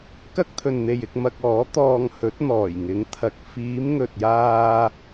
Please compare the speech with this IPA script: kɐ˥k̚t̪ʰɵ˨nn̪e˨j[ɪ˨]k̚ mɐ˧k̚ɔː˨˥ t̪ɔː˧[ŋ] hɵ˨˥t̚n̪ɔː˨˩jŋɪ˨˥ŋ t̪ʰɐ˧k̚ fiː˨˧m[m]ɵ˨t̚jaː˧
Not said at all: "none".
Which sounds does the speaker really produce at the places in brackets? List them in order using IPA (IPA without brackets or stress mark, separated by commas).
ɪ˧, ŋ, ŋ